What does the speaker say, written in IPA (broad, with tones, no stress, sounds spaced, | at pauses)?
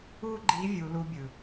u˥ ɡ͡ǃ i˧˥ vʲ u˧ l u˧˥ bʲ ɯ˩